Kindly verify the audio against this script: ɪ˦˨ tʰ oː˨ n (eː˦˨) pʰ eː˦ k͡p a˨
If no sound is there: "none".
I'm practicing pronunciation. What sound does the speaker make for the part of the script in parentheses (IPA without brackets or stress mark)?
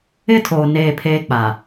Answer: eː˦˨